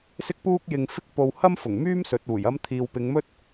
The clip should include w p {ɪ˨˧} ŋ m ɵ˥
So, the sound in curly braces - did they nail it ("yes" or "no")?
yes